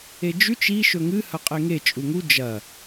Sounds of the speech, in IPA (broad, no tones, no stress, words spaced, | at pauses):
ed͡ʒʉt͡ʃ i ʃɵŋɨ hɐqʼeŋe t͡ʃʼuŋu d͡ʒɐ